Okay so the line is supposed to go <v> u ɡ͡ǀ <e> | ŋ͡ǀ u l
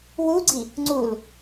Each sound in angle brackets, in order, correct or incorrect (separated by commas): incorrect, incorrect